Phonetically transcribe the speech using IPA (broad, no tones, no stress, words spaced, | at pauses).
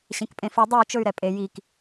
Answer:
ɕẽkpʼẽfi dˤiu̯ t͡ʃɵy̯ɾɛpʼe jik